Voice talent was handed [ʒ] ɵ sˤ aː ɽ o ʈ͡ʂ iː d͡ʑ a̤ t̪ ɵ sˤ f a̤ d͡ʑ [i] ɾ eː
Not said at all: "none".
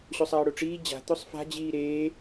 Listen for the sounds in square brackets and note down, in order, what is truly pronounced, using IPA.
ɕ, iː

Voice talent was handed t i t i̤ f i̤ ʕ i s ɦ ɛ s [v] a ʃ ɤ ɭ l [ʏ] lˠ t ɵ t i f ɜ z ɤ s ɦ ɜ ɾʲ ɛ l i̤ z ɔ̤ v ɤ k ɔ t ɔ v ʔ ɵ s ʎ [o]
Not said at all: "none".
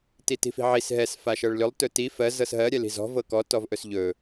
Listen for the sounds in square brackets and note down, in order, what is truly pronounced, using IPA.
f, ʏ, ɵ

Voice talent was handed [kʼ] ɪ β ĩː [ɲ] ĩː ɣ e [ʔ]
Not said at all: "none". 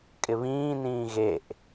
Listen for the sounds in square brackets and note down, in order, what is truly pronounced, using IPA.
kʼ, n, ʔ

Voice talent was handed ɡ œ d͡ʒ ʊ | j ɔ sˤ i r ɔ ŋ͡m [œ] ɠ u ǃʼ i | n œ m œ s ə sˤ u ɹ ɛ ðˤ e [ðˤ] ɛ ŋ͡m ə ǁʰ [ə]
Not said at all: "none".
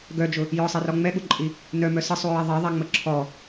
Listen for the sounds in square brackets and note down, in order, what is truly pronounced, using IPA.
ɛ, ðˤ, ɔ

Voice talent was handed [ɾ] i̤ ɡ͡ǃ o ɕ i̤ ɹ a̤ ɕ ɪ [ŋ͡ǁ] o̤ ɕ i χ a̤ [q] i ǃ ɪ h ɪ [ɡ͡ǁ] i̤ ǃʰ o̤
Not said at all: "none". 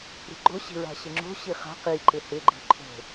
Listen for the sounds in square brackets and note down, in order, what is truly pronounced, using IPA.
ɾ, ŋ͡ǁ, q, ɡ͡ǃ

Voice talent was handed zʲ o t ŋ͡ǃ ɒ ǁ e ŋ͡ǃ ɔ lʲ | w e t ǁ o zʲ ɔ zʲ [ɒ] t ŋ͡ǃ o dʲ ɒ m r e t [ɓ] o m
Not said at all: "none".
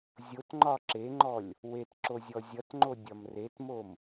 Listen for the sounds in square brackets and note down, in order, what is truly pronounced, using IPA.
ʌ, m

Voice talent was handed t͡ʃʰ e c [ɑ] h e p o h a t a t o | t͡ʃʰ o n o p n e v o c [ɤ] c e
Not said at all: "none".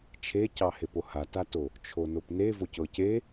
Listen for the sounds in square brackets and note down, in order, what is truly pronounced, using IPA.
ɑ, ɤ

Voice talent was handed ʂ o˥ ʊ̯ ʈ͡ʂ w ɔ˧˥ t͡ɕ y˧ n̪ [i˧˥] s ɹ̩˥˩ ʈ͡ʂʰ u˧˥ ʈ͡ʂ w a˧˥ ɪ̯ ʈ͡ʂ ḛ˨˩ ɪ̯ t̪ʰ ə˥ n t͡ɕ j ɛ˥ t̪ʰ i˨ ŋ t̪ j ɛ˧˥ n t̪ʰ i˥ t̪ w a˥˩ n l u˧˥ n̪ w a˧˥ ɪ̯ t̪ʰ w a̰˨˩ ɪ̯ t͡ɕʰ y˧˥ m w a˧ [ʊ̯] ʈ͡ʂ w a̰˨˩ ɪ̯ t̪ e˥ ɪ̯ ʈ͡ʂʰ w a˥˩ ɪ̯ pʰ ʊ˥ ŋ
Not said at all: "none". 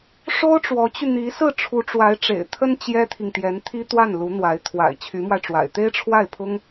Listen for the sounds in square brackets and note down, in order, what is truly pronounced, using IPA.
i˧˥, ɪ̯

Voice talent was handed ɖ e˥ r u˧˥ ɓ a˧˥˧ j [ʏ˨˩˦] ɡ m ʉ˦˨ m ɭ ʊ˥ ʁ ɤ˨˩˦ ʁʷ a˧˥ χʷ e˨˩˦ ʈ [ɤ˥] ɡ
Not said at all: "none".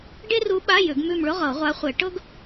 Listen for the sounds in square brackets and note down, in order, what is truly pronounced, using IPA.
ʏ˨˩˦, ɤ˥

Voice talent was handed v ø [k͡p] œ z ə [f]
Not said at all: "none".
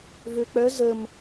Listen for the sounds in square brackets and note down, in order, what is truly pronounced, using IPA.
k͡p, m

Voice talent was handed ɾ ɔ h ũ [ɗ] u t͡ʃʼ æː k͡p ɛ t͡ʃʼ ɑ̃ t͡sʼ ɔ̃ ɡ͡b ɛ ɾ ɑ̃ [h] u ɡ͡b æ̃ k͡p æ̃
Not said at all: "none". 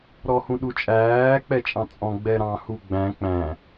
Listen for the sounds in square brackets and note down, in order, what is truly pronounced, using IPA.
ɗ, h

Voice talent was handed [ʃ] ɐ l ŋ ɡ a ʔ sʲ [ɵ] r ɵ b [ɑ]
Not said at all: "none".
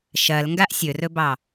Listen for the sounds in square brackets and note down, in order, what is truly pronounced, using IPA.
ʃ, ɵ, ɑ

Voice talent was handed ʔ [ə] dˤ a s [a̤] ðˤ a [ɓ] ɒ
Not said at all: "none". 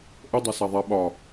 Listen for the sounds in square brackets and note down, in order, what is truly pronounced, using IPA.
ə, a, ɓ

